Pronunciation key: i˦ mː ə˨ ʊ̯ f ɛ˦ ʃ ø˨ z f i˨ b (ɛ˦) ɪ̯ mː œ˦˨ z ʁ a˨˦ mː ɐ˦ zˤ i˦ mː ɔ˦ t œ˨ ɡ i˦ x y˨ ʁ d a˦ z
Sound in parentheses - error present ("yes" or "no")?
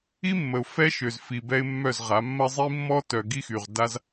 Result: no